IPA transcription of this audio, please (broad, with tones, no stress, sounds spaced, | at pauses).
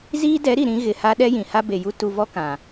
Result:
z iː˦ d ɛ˨˦ ɾ i˨ ɾ ĩ˨˦ ɣ ɪ˨ h a˦ ɗ ɛ˦ j ĩ˨ h a˦ b e˨ j u˦ t u˨ v ɔ˦ k ã˨